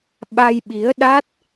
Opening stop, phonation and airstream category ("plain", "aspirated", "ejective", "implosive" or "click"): implosive